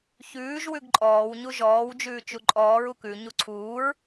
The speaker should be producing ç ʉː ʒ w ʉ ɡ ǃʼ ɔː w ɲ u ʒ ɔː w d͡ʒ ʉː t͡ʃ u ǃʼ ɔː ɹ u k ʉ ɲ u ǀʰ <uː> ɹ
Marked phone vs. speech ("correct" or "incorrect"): correct